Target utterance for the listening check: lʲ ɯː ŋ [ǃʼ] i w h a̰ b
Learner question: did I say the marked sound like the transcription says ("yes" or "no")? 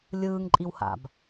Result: yes